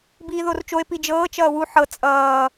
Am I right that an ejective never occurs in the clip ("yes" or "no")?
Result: no